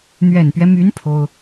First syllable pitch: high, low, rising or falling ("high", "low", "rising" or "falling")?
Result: low